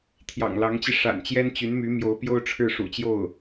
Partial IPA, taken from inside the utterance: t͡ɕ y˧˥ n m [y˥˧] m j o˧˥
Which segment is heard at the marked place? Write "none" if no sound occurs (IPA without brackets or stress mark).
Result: y˧˥